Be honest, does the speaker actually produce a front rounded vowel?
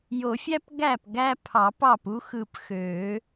yes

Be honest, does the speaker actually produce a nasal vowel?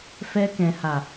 yes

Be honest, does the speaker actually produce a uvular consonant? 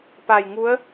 no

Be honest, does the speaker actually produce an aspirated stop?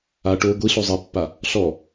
no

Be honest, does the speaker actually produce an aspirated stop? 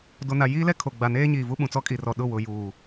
yes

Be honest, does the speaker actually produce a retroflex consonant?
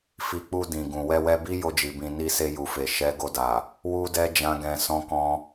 no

